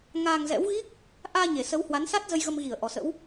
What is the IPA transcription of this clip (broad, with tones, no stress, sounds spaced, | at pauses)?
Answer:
ŋ aː˧ ŋ z ɛ̰˧˥ w ɣ i˦˥ k̚ | ʔ aː˧ ɲ e˧˩ s ə˨˦ w h w a˨˦ n s a˦˥ t̚ z ə˧ j ɣ ə˧ m ɣ i˧˩ ə̯ ʔ ɔ˨˩ s ə̰˧˥ w